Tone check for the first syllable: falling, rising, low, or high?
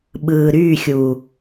low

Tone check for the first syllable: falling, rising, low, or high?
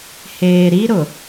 low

